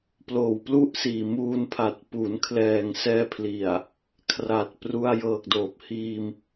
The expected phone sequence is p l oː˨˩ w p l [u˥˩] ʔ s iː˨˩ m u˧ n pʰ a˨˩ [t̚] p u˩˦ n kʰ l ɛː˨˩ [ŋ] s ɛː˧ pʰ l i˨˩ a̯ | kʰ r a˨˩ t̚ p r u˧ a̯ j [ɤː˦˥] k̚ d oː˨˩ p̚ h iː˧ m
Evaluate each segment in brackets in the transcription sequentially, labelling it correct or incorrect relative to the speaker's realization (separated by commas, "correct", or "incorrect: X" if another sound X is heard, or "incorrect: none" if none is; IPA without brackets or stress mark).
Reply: correct, correct, correct, incorrect: ɤː˨˩